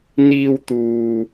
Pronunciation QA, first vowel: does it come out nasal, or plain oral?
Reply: oral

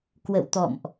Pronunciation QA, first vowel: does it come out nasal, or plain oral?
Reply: oral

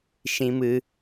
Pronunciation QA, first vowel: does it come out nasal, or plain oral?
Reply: nasal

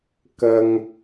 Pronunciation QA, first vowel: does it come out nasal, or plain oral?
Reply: oral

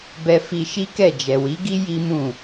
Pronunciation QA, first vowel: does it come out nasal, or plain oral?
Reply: oral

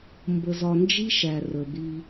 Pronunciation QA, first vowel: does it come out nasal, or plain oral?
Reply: oral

